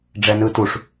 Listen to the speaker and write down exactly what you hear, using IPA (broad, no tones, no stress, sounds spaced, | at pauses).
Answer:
ɖ͡ʐ ɛ n ɯ t u ʂ